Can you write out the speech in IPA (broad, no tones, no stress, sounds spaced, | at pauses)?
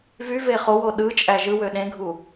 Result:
v y v e χ o w o ɗ ɯ t͡ʃʼ æ ʒ ɯ w ø ɗ ẽ ɡʱ u